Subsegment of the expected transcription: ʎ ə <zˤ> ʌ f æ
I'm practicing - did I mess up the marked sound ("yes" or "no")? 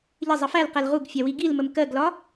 no